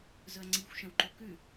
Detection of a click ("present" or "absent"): present